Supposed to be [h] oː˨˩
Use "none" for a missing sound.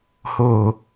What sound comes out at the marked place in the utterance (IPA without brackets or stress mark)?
h